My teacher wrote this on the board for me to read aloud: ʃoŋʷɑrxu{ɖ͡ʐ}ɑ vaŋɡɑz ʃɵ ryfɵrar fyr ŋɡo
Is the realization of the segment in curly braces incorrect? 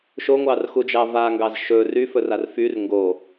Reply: yes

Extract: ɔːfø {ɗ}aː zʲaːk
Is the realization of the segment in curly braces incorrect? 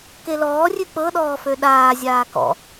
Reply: no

